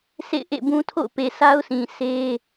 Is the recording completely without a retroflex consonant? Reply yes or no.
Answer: yes